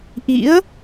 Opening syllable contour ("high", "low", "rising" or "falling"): rising